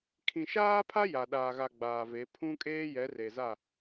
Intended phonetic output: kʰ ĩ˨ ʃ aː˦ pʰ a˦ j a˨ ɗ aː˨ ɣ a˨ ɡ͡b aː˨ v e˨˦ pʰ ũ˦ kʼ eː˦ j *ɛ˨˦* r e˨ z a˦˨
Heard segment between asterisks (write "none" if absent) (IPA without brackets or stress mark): ɛ˨˦